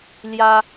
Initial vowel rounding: unrounded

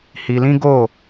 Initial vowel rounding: unrounded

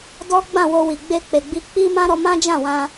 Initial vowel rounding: rounded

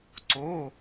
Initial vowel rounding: rounded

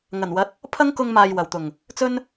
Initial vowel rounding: unrounded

